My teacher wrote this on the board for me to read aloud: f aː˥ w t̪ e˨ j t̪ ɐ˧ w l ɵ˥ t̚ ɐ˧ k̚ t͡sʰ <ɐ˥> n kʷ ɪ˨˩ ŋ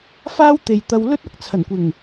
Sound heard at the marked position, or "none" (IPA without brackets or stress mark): ɐ˨˩